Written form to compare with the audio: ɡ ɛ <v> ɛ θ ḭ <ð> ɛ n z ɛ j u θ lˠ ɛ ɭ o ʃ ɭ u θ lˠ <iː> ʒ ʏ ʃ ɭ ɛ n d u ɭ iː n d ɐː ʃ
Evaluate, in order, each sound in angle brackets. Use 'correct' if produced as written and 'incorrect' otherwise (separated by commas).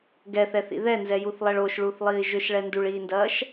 incorrect, correct, correct